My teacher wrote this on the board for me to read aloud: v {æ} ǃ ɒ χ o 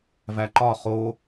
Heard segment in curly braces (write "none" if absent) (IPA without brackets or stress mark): æ